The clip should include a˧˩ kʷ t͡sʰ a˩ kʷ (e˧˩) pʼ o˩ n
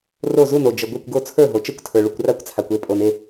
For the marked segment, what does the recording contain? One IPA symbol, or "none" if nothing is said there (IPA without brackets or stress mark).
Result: e˧˩